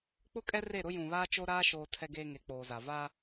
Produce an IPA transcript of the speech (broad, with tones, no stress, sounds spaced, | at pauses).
k͡p ʊ˦ kʼ ɛ˦ r e˦˨ ɾ ʊ˦ j ũ˨ β aː˦ t͡ʃ o˦ ɾ aː˦ ʃ oː˨ tʰ ɛ˨ ɡ eː˨ ŋ e˨ k͡p oː˨ z a˨ v a˦